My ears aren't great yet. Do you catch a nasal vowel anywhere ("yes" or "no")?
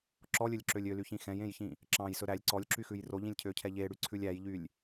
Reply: yes